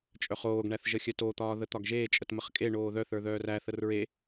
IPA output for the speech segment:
t͡ʃʼ œ χ oː ɡ ɳ æ θ ʒ ə xʲ œ t o t̪ ɒː ð ə t̪ ɒ ɡ ʒ eː t͡ʃʼ ə t m ə χ kʼ e ɳ oː ð œ θ ə˞ ð œː r æ θ ə r ɹ e

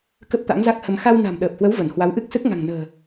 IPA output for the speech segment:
k ə˦˥ p̚ t̪ a̰˧˥ ŋ z a˦˥ k̚ h ə˧ m x a˧ w n a̤˨˩ m ɗ əː˨˩ p̚ h w ə˨˦ w v ə˧˩ n h w a˨˦ w ʔ ɨ˦˥ k̚ s ɨ˦˥ k̚ ŋ a̤˨˩ ŋ n ə̤ː˨˩

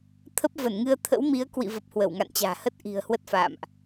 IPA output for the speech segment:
t̪ʰ ə˦˥ p̚ v ə˧˩ n ŋ ɨ˧ ə̯ t̪ʰ ə̰˧˥ w m i˨˦ ə̯ k w ḭ˧˨ v ə˨˩ p̚ h w ə˧˩ w ŋ a̰˧˨ n t͡ɕ a̤ː˨˩ h ə˦˥ t̚ ʔ i̤˨˩ ə̯ h w ə˦˥ t̚ f a̰ː˧˨ m ʔ

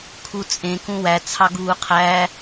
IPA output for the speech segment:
kʰ u t͡sʼ ẽ k ũ w æ t͡sʰ ɑ ɡ uː qʰ æ

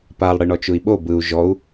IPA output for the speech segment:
p a lˠ ɽ ɨ ɳ ɔ t͡ʃ u i̯ ɓ o b ɯ u̯ ʒ ɔ u̯

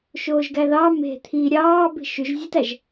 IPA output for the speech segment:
ʃ oː ʒ ɡ æ ð ɑ m e̤ t̪ʰ i ɾʲ ɑː b i̤ ʃ y ʒ zʲ ɯ t æ ʒ

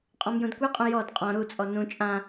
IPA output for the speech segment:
qʼ ɔ̃ m j ũ d kʷ i qʼ ũ j ɔ d qʼ ɔ̃ ɾ u t͡sʼ ɔ n ũ t͡ʃʼ ã

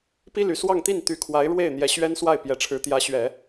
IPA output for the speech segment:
p i˥ l y˨˩ s w ɑ˥˧ ŋ t̪ i˥˩ n t̪ y˧˥ kʰ w a˧˥ ɪ̯ ɻ w e˥˩ ɪ̯ n̪ j ɛ˧˥ ɕ ɥ ɛ˥ n s w a˥˩ ɪ̯ p j ɛ˨˩ ʈ͡ʂʰ ɻ̩˧˥ t̪ j ä˧˥ ɕ ɥ ɛ˨˩˦

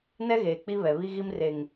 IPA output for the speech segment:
n ɛ˦ ɣ eː˨ k͡p i˦ β ɛ˨ β i˦ ɣ i˦ m r e˨ ŋ

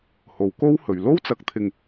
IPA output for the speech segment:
h o˨˩ w k o˥ w h ɵ˨˩ ɥ l o˥ w t͡s ɐ˨ k̚ t̪ʰ ɪ˨ ŋ

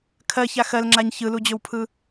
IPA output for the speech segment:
kʰ ɜ ç a x ɜ l ŋ͡ǁ a ɲ ç ɯ l u d͡ʑ ɵ w pʰ ɯ

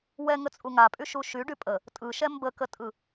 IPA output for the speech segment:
w ɛ ŋ ə t͡sʼ u ŋ a pʼ y ʃ u ʃ y ɖ y pʼ ə | tʼ ɯ ʃ ɛ m b ə k ə tʼ ɯ

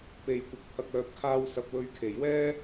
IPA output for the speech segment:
p e˨ j kʷ ɪ˨ k̚ pʰ ɐ˨ k̚ œː˨ p̚ kʰ aː˧ w s ɐ˨ p̚ w ɵ˨˧ ɥ kʰ e˨˩ j w ɛː˥

